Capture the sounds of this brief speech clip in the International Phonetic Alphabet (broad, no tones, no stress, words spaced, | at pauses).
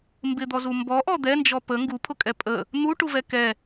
mbɪd̪ɔzu mbɔʔɔ d̪ɛnd͡ʒɔ pə ŋɡupʰʊkʼɛ pʼə | n̪uʈuvɛ kɛ